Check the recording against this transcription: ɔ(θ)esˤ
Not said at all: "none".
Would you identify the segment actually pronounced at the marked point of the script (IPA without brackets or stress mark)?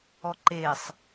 ǃ